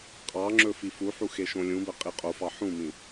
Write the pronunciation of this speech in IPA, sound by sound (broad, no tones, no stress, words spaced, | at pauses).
qʼɑŋ͡ǁɵ fifuħu xeʃõlʲũbə qʼiqʼofɑ ħũmĩ